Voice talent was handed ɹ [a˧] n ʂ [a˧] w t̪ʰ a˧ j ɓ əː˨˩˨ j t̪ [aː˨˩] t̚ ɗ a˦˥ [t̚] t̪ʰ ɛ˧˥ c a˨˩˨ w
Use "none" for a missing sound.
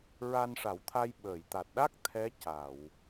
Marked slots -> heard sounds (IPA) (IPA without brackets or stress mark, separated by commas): a˧, a˨˩˦, a˨˩, k̚